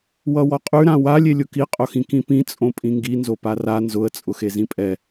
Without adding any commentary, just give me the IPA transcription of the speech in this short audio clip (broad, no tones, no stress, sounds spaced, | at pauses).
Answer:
w ʌ w ɔ qʼ ʉ ɾ ã w a lʲ e lʲ ʊ k i qʼ ʊ x ĩ k ĩ p ĩ t͡sʼ õ pʼ ĩ ŋ ɡ i n z o p a r a n z ʊ ə̯ t͡sʼ ʊ x e z ĩ pʼ ɛ